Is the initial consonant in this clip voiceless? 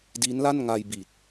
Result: no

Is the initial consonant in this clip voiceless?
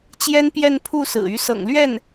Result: yes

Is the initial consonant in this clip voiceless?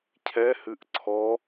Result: yes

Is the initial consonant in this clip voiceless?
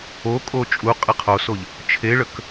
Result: yes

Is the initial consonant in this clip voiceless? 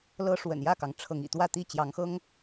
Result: no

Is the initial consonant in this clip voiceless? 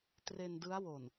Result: yes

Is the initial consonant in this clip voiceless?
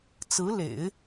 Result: yes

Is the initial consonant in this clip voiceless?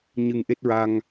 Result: no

